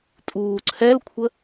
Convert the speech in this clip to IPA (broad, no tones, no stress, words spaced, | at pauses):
tʼuːǀʰɛlkʷʰə